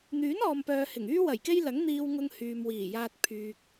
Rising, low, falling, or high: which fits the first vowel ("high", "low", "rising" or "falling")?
rising